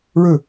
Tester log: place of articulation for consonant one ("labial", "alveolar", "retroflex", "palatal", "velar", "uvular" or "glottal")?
retroflex